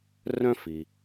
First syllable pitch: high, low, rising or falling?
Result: high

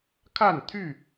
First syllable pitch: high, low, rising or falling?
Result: falling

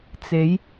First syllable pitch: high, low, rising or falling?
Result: rising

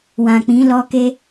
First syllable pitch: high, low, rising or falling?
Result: low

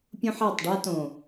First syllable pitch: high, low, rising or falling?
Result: high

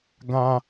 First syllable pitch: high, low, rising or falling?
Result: high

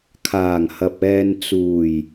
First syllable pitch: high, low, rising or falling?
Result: low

